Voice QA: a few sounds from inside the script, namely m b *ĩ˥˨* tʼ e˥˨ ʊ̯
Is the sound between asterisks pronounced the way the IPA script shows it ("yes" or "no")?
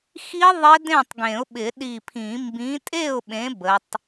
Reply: no